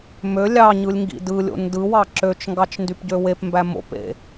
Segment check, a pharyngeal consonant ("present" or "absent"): absent